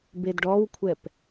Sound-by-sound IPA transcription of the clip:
bedɖɔwkʷʰɛp

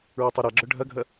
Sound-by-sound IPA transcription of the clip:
ɹœtˤɛɾaɡ͡ǁœ ɖʱɐɡʱɐ

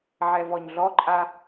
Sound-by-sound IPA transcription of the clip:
ʕɛvɔɲɮɔǃʼa

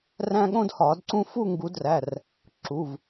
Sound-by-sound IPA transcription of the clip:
ræ̃˦ɠõ˦dhɒ˨˩˦dǀũ˦ fu˥˨ŋɡu˨˦dræ˩˧˩r | ǁu˩˧˩v

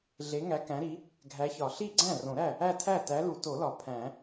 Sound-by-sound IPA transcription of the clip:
ɮe˨˥ŋæ˨˥kæ̃˨˥ɾi˨˥ | ɡʱæ˨˥çɒ˨˩˦ ɬi˥˩ɡ͡ǀæ̃˥˩rõ˨˩˦ɾæ˥˩ | æ˥˩tʰæ˥˩tæ˨˥lu˨˩˦ to˨˩˦lɒ˨˩˦ pʰæ̃˨˩˦

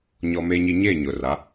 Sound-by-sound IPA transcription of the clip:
ɲɔ˦me˦ɲi˦ ɲeː˦˨ɲʊ˨ra˨˦

